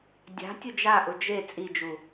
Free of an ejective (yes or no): no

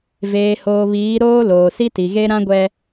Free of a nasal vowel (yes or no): no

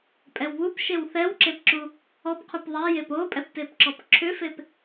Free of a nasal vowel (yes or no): yes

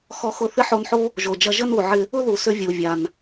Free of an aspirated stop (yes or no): yes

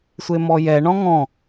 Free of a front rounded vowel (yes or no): yes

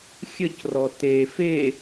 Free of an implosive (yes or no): yes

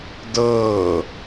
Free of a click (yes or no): yes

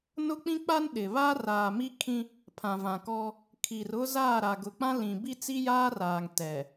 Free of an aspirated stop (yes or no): no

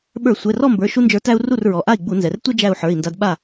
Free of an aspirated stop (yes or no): yes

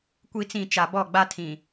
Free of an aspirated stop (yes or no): no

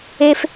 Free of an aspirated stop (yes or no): yes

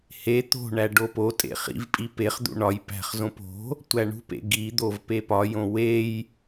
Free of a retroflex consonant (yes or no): no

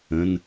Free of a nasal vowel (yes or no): no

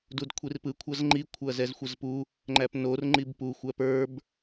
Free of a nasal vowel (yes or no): yes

